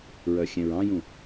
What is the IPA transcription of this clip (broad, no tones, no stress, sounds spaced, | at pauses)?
ɹ œ xʲ ɛ̃ ɹ ɑ̃ j ũ